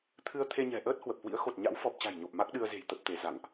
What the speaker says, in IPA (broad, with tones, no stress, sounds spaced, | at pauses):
t̪ʰ ɨ˧ ə̯ t̪ʰ e˧ ɲ ɛ̤˨˩ ʔ əː˦˥ t̚ h w ə˨˩ p̚ h w ḭ˧˥ ə̯ x o˨˩ t̚ ɲ a̰˧˥ w f ɔ˨˩ p̚ t͡ɕ a̤˨˩ j ɲ o˨˩ p̚ m a˦˥ k̚ ɗ ɨ˧ ə̯ z e̤˨˩ j t̪ ə˦˥ p̚ t̪ e˨˦ z a̰˧˨ ŋ ʔ